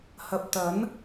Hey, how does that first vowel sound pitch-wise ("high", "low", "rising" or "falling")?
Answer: low